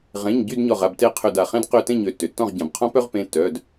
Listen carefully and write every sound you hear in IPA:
ʁ ẽ˩˧˩ ɲ ɟ y˥˨ d ɲ ɔ˧˩ ʁ a˥˨ b t e˥˨ qʰ ø˧˩ d a˩ χ ẽ˥ d q ø˧ t ẽ˥˨ ɲ ø˧˩ tː ø˩ tː ɔ̃˥˨ ʁ ɟ ã˩ b qʰ ɔ̃˥ p œ˥ ʁ p ẽ˩˧˩ tː œ˩˧˩ d

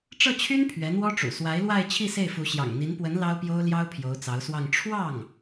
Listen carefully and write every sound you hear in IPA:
ʈ͡ʂ ɤ˥˩ t͡ɕʰ y˥ n pʰ ɥ ɛ˧˥ n̪ w ɔ˥ ʈ͡ʂ ṵ˨˩ s w a˧˥ ɪ̯ l w a˥˧ ɪ̯ t͡ɕʰ i˥˧ s e˥˩ ɪ̯ f u˧˥ ɕ j ɑ̰˨˩ ŋ n̪ i˧˥ n p w ə˧˥ n l ɑ˥ ʊ̯ p j o˥ ʊ̯ l j ɑ˥ ʊ̯ pʰ j o˧˥ ʊ̯ t͡s ɑ˧˥ ʊ̯ s w ɑ˥˧ ŋ ʈ͡ʂʰ w ɑ˥˩ ŋ

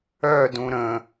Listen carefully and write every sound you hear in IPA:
œ d ũ ɾ ə̃

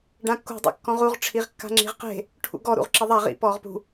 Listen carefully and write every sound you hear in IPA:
ɖ ã kː ṳ dˤ ḭ kː ɔ̃ ʁ u ʁ ʈ͡ʂʰ i ʁ kː a̤ ŋ͡ǁ i̤ ʁ q e̤ | ʈʰ ṵ ɡ ɔ ɾ ṵ ʁ ǁ ɪ ðˤ a ʁ ḭ p ɔː ʁ p ṳ

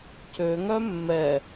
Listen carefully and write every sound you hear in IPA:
c ø ŋ œ mː ɛ

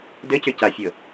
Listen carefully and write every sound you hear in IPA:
d ɘ c ʏ c a fʲ ɤ

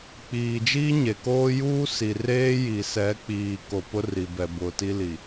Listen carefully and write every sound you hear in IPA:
k͡p iː˨ d͡ʒ iː˦ ɲ e˨ k oː˦ j uː˦ s i˨ r eː˦ j i˨ s ɛ˨˦ k͡p iː˨ k o˨ p ʊ˦ r i˨ b ɛ˨ b ʊ˨ t i˦ l i˨

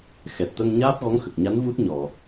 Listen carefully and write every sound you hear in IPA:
x ɛ˨˩ t̚ t̪ ə˧ ŋ ɲ aː˦˥ p̚ ɣ ɔ˧˥ ŋ x ə˨˩ k̚ ɲ a˧˥ n v u˦˥ t̚ ɲ ɔ˨˩˨

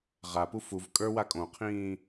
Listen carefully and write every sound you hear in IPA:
ʁ a p u f u v kʼ ə˞ w a kʼ õ qʰ ĩː

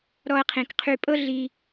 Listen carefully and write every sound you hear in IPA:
ɾ ɔ˧ ɐ̯ qʰ ĩ˨ k qʰ y˧ pʼ ɤ˦ ɮ i˧

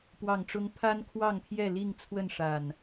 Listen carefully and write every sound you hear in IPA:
p w ɑ˨˩ ŋ ʈ͡ʂ ʊ˨˦ ŋ pʰ a˦ n kʰ w ɑ˥˨ ŋ pʰ j ɛ˥˨ l i˥˨ ŋ t͡sʰ w ə˥˨ n ʂ a˨˩ n

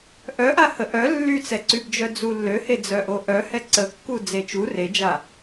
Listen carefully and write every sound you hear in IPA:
ʔ œ ʔ a h ə ʔ œ lː y t͡s ɛ ǀ y b d͡ʒ œ d͡z u lː ø h e d͡z œ ʔ o ʔ œ h ɛ ǀ ə kː u d͡z e t͡ʃ u r e d͡ʒ a

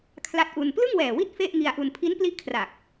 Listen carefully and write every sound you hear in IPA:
kʰ l a˦˥ t̚ ʔ u˧ n p l ɯ˥˩ ŋ w ɛː˨˩ w i˥˩ t̚ f e˥˩ ʔ ŋ i˧ a̯ ʔ u˧ n pʰ i˦˥ n p l i˦˥ ʔ kʰ r a˨˩ k̚

